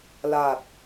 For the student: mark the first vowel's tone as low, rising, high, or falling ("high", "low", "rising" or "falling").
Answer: low